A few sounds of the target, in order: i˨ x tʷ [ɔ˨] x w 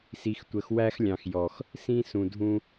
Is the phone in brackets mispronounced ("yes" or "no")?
yes